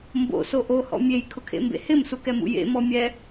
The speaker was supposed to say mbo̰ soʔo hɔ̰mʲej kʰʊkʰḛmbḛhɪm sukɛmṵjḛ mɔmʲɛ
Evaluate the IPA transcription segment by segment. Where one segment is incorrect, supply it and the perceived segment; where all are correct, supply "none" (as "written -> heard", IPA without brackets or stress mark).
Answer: none